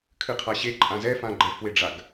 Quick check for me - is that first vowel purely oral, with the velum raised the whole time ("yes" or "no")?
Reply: yes